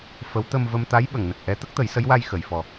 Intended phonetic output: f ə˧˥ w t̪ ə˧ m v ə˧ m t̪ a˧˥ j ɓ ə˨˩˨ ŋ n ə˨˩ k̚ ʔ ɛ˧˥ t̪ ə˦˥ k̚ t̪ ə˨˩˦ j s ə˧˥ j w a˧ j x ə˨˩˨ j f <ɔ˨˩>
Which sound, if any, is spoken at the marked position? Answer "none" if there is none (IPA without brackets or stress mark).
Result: ɔ˨˩